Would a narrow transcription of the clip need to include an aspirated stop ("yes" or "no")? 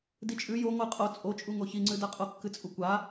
no